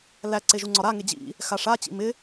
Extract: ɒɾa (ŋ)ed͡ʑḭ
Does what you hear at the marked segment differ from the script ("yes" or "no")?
no